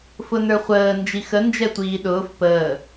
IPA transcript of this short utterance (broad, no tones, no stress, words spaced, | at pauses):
fʊnə˞χʷəː nd͡ʒixə nd͡ʒɛtʷiːɗʊːf pəː